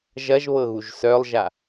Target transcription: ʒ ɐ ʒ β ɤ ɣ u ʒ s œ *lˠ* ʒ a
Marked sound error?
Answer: no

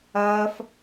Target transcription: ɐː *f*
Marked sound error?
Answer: no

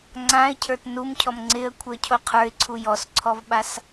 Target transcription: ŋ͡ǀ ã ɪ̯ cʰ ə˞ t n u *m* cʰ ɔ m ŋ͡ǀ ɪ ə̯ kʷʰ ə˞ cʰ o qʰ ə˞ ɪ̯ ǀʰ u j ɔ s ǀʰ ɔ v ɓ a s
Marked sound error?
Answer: no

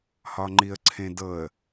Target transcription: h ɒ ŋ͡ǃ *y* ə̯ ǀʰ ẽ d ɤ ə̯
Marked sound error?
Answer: yes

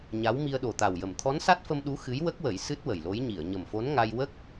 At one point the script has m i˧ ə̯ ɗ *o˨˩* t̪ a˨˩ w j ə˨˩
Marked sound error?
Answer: no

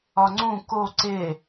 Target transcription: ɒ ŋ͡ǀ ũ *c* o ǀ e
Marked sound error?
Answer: yes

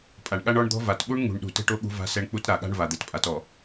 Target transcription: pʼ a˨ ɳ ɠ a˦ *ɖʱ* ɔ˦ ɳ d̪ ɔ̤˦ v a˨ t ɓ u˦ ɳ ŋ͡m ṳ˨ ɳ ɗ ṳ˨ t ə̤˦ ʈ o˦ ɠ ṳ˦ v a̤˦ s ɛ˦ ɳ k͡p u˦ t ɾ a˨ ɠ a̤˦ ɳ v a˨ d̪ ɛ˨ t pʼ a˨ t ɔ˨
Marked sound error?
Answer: yes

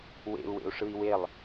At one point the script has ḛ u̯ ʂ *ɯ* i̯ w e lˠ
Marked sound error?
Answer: no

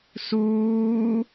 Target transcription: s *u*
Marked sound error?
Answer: yes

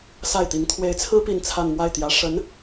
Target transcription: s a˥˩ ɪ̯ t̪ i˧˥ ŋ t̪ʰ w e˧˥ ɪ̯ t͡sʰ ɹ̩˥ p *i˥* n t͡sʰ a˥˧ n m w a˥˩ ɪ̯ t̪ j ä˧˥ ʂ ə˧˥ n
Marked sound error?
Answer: yes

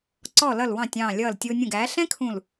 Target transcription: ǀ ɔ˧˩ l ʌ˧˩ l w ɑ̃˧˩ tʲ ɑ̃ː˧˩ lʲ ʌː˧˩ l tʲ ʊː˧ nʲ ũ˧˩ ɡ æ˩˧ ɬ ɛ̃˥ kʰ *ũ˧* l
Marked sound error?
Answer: yes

